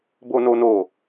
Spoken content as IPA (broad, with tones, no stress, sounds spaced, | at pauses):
b o˦ n o˦ n o˦˨